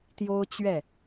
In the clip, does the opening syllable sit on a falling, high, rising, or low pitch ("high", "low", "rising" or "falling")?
high